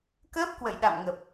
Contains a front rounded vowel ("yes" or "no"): no